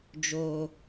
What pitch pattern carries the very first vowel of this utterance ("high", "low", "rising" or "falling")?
low